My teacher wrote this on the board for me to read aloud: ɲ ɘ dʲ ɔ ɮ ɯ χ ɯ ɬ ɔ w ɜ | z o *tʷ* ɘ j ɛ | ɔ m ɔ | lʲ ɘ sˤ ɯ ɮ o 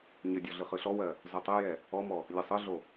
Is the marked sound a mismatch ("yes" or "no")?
yes